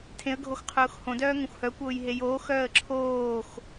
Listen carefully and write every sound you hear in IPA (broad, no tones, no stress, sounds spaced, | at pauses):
tʰ ẽ ə̯ ɡʱ o x qʰ ʊː x h õ d œː ŋ ə̃ xʷ h œ kʷ ʊː j ɦ e j oː x œː ə̯ ǁʰ oː x